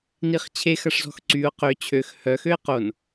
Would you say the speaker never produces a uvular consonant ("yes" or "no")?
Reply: no